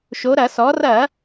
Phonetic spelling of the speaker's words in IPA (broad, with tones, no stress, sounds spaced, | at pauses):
ʃ o˩˧ ɾ ɐ˧˩˧ s ɔ˩˧ r ɐ˧˩˧